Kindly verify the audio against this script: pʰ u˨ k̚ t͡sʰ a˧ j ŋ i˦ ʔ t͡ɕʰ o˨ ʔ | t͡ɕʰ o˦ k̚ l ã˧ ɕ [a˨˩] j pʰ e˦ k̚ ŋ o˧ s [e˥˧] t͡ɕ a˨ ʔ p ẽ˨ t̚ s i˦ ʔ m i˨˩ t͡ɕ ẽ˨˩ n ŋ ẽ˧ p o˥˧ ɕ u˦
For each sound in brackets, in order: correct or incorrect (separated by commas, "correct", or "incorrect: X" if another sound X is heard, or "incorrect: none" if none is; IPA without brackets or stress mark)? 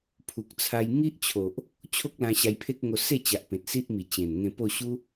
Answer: incorrect: a˧, correct